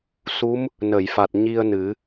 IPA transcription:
su˧˥m | nə˨˩˨jfa˨˩t̚ ɲi˧ə̯nɨ˨˩˦

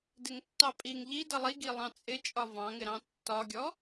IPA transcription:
dɪŋtːɑpʼiŋ ʎi dʌlˠi ɡilˠɑ̃t͡sʼɪt͡ʃʼɒ vɑ̃ŋɪɾɑ̃ tːɒɡʲɔ

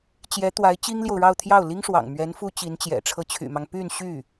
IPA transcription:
t͡ɕjɛ˧˥t̪wa˧˥ɪ̯ t͡ɕi˥ŋljo˨ʊ̯ɻɑ˥˧ʊ̯t̪ʰjɑ˥˩ʊ̯ li˥ŋʂwɑ̰˨˩ŋmɥɛ˧˥n fu˥t͡ɕi˧˥nt͡ɕjɛ̰˨˩ ʈ͡ʂʰɤ˧˥t͡ɕʰy̰˨˩mɑ˦ŋ py˥˧n ɕy˥˩

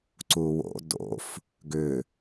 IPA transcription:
ǀuwo̰ do̰f | ɡʏ

